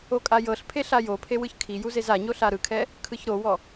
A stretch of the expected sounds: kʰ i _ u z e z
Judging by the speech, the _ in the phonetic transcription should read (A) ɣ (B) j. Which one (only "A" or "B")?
B